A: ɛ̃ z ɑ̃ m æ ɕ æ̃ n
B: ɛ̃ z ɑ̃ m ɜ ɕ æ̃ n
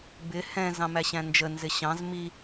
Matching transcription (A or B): A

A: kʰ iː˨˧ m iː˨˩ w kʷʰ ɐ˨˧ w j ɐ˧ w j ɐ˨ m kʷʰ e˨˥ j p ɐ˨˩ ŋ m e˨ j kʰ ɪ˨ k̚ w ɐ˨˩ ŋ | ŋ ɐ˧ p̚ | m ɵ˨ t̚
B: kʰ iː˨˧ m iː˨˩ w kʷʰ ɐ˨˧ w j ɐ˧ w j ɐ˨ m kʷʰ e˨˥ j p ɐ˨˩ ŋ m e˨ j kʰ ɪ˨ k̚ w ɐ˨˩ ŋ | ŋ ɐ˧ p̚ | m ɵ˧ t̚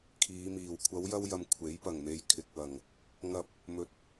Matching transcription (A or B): A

